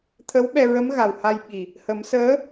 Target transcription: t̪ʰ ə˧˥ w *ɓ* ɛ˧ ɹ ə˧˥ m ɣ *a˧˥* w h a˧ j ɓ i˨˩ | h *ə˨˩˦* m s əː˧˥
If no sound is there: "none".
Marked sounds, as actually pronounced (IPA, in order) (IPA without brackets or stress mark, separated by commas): ɓ, a˨˩, ə˨˩˦